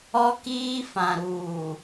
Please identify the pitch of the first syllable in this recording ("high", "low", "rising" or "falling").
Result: high